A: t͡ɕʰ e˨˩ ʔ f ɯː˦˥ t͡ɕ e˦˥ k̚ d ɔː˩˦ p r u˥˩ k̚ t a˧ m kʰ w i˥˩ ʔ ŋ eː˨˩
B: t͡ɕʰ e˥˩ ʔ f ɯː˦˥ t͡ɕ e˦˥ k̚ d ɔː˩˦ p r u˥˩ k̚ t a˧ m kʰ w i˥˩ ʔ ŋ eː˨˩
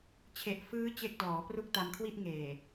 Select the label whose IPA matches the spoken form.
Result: A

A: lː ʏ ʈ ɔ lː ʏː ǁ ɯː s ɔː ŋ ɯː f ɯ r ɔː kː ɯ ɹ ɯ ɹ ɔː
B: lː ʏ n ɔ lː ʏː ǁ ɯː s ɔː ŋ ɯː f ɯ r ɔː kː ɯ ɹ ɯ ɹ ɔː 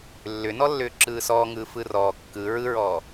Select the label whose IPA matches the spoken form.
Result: B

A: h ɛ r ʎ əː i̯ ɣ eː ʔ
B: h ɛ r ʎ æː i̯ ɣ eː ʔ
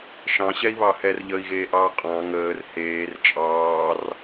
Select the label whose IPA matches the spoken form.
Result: A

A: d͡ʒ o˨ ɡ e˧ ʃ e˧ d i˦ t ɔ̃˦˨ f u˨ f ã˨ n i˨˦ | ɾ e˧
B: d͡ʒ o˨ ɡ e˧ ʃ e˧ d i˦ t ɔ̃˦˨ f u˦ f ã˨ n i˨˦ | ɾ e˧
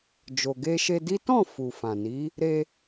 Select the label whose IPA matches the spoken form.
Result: A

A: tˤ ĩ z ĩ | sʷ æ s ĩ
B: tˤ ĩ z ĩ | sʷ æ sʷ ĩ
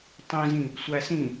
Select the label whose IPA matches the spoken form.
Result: A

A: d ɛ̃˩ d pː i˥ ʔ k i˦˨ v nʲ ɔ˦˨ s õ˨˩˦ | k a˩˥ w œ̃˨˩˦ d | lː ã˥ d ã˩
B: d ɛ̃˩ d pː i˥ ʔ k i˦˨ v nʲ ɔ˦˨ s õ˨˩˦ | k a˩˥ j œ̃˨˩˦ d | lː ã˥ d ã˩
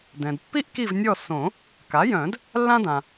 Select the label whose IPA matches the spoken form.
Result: B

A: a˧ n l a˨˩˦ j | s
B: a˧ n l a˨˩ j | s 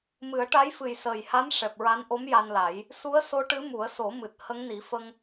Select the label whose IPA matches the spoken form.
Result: A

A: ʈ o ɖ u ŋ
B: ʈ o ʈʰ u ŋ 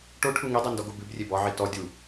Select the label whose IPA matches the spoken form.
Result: B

